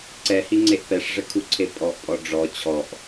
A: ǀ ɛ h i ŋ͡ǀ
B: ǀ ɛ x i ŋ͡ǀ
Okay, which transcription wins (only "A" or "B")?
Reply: A